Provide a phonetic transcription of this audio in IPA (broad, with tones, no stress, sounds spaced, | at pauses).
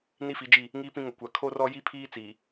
n i˦ f i˨˦ d͡ʒ i˦˨ | ŋ iː˦ p ĩ˦ ŋ ʊ˨ kʷ a˨ kʰ o˦ r ɔ˦ j i˦ pʰ iː˦ t͡s iː˨